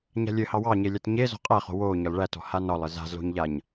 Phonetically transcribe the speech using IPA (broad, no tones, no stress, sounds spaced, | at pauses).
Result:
ɲ a̤ lʲ ɘ h ɑ w ɑ ɲ e lʲ a t ɲ e z ɔ̤ qʼ æ χ o̤ w o ɲ ɒ l ɭ æ t ɔ̤ h a n ɒ lˠ ɘ z a̤ z l o̤ ɲ ʎ a ɲ